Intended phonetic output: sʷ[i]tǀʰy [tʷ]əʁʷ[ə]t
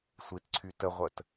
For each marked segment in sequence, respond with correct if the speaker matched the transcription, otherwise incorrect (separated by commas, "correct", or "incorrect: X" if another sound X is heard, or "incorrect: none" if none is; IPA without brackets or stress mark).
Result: correct, incorrect: t, correct